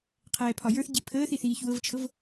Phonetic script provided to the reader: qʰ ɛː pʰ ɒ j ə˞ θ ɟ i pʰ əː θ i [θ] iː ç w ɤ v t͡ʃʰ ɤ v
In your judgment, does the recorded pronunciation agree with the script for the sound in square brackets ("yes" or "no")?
yes